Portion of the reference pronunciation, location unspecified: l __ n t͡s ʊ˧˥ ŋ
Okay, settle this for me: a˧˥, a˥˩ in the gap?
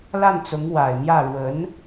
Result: a˥˩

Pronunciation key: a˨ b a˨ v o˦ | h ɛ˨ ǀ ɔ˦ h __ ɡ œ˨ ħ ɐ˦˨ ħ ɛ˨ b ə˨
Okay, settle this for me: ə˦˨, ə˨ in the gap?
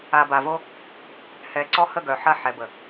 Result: ə˦˨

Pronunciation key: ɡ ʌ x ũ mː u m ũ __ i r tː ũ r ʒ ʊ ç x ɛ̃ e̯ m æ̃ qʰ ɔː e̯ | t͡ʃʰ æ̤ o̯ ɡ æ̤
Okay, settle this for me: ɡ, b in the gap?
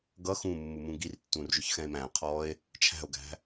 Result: ɡ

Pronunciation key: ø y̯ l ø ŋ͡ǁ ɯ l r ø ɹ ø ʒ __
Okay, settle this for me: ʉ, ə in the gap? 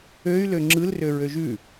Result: ʉ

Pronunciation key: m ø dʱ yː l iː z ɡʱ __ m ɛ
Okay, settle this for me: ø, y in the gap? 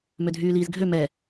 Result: ø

